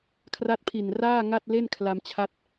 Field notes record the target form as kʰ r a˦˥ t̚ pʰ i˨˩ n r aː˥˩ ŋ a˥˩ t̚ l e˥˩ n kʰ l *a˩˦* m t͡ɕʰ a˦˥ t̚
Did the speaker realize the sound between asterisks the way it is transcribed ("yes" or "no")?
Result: no